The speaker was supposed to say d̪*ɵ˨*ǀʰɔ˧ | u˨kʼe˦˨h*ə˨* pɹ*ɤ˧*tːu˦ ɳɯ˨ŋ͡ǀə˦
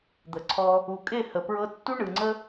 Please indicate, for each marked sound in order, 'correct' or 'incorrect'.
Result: incorrect: ə˨, correct, correct

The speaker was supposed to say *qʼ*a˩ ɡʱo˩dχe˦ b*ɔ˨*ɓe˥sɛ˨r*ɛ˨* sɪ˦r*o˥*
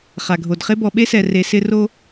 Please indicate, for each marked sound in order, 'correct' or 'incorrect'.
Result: incorrect: χ, correct, incorrect: e˨, incorrect: o˦

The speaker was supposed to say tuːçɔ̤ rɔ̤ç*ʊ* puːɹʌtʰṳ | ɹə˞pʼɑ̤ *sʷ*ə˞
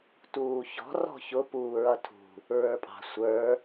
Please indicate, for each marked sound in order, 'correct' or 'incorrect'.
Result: correct, correct

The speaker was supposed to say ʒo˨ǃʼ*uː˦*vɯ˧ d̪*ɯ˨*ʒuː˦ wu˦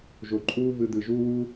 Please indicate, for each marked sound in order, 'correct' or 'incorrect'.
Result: correct, correct

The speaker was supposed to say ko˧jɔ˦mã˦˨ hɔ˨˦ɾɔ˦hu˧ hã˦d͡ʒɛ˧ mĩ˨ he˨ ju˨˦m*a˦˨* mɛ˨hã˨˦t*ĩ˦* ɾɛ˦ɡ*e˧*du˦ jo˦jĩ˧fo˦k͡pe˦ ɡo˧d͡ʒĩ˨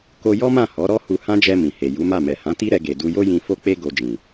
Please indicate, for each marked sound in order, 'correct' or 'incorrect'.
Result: correct, incorrect: i˦, correct

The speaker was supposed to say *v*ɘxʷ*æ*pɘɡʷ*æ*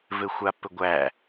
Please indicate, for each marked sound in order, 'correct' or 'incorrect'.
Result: correct, incorrect: a, correct

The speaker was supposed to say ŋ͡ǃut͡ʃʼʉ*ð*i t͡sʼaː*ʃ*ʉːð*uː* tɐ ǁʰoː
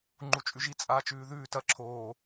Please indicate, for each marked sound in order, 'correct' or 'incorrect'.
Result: incorrect: ʒ, incorrect: t͡ʃ, incorrect: ʉː

